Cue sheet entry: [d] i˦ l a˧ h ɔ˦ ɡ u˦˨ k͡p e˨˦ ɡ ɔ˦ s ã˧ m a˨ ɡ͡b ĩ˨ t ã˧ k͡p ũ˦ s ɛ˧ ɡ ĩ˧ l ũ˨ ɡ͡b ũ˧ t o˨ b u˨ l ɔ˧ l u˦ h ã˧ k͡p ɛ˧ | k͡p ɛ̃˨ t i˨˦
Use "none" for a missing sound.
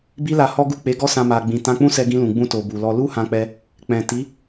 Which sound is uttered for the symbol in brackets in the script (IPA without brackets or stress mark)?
b